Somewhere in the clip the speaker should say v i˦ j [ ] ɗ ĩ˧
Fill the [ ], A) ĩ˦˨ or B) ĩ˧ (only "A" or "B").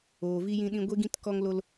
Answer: B